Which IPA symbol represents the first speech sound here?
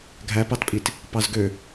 ɡʱ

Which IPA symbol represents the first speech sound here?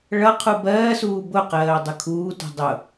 ɭ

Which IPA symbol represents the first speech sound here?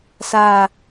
s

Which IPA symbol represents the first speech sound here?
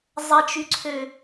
zˤ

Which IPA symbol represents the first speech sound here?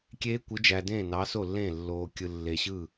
kʲ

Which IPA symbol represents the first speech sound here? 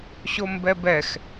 ɕ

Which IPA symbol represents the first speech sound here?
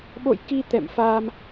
ɓ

